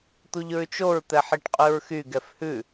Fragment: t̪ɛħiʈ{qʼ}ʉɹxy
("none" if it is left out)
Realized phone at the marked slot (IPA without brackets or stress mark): qʼ